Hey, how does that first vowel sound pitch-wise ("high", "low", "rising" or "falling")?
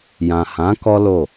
low